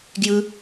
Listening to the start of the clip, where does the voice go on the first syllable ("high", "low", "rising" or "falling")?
high